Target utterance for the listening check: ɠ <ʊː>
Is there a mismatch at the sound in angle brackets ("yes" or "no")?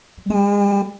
yes